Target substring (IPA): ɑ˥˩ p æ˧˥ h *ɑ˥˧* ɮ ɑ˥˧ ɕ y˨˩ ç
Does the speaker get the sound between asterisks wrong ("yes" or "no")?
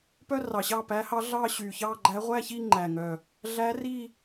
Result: yes